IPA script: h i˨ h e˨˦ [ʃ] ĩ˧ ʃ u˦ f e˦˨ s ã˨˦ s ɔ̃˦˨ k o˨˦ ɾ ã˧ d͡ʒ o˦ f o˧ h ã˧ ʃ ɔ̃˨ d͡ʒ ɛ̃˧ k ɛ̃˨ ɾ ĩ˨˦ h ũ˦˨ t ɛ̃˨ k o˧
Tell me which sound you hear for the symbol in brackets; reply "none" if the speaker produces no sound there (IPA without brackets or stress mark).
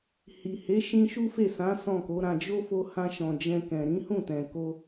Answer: ʃ